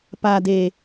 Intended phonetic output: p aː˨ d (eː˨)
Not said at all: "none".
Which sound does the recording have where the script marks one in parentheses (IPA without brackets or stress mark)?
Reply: eː˨